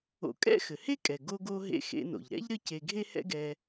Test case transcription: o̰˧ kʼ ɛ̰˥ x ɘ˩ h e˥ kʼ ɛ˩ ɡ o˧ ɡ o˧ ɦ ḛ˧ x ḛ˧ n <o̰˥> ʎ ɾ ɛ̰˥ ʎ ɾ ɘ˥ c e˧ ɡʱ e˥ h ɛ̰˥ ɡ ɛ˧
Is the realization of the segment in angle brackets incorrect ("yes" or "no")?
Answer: yes